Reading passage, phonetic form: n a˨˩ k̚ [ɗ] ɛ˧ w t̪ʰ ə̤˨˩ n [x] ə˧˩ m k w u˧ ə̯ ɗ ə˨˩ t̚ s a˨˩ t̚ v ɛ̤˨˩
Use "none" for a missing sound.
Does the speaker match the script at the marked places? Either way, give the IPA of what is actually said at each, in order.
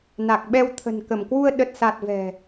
ɓ, k

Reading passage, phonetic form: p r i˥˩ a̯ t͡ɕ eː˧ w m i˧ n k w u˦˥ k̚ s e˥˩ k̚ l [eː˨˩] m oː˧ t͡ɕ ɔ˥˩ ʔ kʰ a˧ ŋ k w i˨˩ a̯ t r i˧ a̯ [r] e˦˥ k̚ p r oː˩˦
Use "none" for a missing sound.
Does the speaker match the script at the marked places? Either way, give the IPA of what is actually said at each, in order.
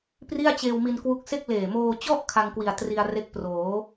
eː˨˩, r

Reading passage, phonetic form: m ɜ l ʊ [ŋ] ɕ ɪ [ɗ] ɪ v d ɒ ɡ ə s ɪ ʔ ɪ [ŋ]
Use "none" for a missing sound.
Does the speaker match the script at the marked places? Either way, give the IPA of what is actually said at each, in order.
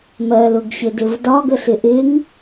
ɡ, d, ŋ

